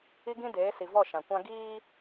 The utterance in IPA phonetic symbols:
i˦ɡĩ˦deː˨˦ si˨vɔ˦˨ʃã˨kʷã˦ ɡiː˦

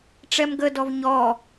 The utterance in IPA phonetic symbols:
ʈ͡ʂɛmɡədɔv ɲɔ

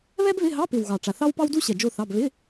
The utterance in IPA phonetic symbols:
βɛ˥bβɪ˧˥˧ɦɑ˧˥˧pɪ˨˩w ɣɑ˨˩ʈ͡ʂa˨˩θɑ˥wpɑ˥w du˥ɕɛ˨˩ d͡ʒo˥˧θɑ˧˥˧b βɪ˧˥˧

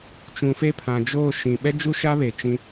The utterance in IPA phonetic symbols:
t͡ʃũ˨fe˦pʰã˨d͡ʒoː˦˨ ʃĩ˨ ɓɛ˦d͡ʒu˦ʃa˦ βe˨t͡ʃĩ˦

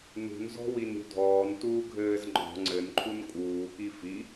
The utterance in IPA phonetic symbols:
nṳnzɔ̤win ɾʲṳdʱɔːn tuːɡʱɘːz ŋ͡ǃɔ̤ ŋ͡ǀɘnǃʰun kʼuːki fi

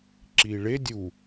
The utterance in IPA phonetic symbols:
ǁiɭe dʲu

